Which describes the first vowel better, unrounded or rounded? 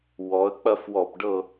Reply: rounded